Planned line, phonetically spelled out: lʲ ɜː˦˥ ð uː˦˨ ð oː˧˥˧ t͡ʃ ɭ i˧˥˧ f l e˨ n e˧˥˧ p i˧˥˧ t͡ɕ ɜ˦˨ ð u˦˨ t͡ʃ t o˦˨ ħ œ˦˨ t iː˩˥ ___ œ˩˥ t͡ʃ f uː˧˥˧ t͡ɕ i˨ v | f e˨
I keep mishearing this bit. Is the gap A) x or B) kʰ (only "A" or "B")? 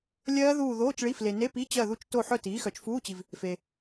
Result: A